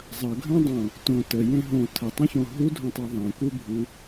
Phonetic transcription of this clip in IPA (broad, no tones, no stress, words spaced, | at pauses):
zˤɐɡʱɐ̃dˤõ | tõ təjẽ ɦõ tʰətˤɐ̃çõ ɦudʱõtˤe ðˤẽkubʱu